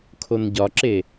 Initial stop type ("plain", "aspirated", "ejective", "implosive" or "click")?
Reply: aspirated